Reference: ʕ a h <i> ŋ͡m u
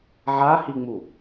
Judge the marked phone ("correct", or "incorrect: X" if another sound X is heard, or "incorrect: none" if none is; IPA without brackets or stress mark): correct